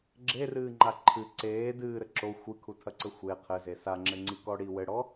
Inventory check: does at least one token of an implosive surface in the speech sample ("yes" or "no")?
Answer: no